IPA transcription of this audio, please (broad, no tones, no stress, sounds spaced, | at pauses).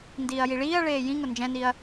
n d iː ɐ̯ j i ɭ iː ɐ̯ ɭ eː j ĩ ŋ ʊ n d͡ʒ ɛ̃ n i ɐ̯